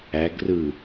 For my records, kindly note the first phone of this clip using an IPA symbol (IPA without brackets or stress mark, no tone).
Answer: æ